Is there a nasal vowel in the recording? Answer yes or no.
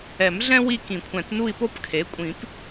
yes